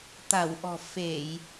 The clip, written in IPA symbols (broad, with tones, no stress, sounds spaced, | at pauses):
t̪ a˧˩ w ʔ ɔ̤˨˩ f e˧˩˨ j